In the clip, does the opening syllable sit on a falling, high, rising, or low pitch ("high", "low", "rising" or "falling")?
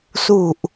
low